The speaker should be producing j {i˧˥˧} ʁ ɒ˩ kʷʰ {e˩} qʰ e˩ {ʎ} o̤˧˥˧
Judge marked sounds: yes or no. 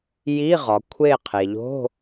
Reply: yes, no, yes

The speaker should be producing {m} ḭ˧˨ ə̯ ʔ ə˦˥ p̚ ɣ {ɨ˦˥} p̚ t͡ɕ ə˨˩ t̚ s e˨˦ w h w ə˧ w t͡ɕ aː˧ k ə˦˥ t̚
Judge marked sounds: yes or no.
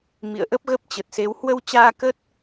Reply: yes, no

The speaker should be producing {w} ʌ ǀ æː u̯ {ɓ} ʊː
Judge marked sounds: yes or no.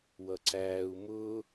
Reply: yes, no

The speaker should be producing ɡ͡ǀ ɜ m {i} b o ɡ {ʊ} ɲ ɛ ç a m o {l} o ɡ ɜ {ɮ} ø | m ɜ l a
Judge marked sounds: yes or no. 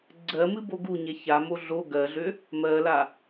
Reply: no, no, no, yes

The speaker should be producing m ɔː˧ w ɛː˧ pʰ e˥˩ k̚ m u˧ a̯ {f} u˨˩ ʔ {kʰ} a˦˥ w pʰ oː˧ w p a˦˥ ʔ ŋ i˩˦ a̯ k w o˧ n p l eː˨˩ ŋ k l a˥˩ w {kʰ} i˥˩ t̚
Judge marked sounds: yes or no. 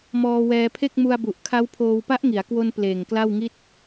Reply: no, yes, no

